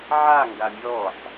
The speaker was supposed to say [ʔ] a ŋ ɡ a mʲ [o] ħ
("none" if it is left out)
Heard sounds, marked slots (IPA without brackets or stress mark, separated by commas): ʕ, ɔ